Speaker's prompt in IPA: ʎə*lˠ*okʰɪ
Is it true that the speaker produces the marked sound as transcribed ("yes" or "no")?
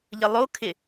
yes